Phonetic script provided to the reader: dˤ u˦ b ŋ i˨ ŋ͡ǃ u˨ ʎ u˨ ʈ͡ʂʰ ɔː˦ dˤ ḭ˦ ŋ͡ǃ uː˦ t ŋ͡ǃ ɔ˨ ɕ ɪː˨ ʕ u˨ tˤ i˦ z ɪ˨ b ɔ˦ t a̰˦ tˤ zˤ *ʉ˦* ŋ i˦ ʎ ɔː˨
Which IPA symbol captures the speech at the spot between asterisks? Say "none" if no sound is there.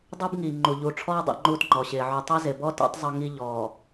ʊ˦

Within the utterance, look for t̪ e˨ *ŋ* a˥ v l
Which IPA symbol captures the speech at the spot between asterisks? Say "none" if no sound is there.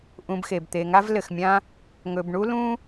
ŋ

